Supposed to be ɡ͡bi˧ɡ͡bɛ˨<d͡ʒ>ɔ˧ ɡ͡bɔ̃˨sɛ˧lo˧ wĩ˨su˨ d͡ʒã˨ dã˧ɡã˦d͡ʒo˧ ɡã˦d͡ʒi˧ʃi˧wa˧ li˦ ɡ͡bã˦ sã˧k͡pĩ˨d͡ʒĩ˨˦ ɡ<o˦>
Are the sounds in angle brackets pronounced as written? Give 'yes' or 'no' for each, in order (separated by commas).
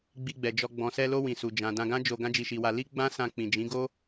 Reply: yes, yes